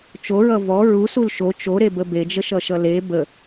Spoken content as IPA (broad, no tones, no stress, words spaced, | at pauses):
t͡ʃoɹʌ vɔ ɹusul ʃo t͡ʃoɾebə bed͡ʒəʃʌʃʌ le bə